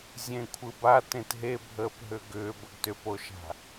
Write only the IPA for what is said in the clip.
zʲ ẽ kʷʰ ɯ b a t ẽ t ɦ e bʱ əː p ɦ ʏ ɡ ʏː b ə ɡ t ʏ p o ʃ a̤

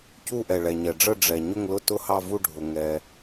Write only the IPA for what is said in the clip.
c u˦˨ ʔ ɛ˩ ɭ ɛ˩ ɲ ɛ˩ ɖ͡ʐ ə˦˨ ɖ͡ʐ ɛ˩ ɲ ʊ˦˨ ŋ l ʊ˦˨ t ʊ˦˨ h ɑ˦˨ v u˦˨ ɖʱ ʊ˩ ŋ ɛ˩

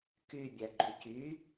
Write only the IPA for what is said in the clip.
k y bʲ æ ɡ͡ǃ y c y

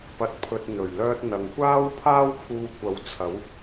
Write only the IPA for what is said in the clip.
p ɐ˨ t̚ pʰ ɵ˨ t̚ n̪ ɵ˨˩ ɥ l œː˧ t̚ n̪ ɐ˨ ŋ kʷ aː˥ w pʰ aː˥ w kʰ uː˧ kʷ ɐ˨˥ w t͡sʰ ɐ˨˥ w

